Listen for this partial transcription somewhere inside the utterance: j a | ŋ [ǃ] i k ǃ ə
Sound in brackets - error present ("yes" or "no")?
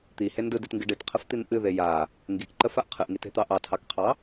yes